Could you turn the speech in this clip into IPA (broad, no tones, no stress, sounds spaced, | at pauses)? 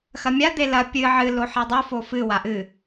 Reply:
x ɐ mʲ a d̪ e l ɐ pʲ ɨ ʕ ɨ l o ħ e dˤ u f o f ɨ w a ʔ ɨ